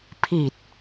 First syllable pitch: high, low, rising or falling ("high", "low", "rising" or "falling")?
low